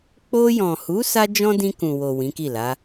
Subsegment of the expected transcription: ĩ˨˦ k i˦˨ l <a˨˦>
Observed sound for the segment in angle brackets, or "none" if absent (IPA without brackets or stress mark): a˨˦